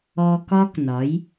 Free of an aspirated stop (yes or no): yes